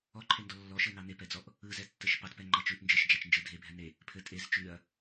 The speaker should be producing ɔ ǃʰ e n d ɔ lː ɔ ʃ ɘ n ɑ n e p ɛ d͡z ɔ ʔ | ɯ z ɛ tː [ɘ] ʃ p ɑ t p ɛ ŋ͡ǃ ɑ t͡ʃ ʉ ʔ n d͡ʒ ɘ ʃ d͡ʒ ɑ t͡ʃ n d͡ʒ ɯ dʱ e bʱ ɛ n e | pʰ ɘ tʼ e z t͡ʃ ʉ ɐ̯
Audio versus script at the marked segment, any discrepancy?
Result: no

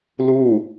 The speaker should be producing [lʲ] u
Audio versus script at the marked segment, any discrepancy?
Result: yes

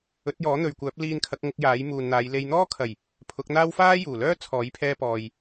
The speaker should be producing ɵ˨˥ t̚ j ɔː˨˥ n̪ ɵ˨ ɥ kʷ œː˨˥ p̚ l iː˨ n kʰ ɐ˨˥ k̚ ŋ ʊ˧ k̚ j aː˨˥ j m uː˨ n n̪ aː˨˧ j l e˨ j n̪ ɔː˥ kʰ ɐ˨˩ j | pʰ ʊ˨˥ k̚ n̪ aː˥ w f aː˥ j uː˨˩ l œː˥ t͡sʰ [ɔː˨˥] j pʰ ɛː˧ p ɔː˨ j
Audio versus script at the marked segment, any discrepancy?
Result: no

